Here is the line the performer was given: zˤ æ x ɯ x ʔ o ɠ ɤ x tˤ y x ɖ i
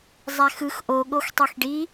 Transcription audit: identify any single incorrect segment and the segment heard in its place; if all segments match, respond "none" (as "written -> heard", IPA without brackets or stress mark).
ɤ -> o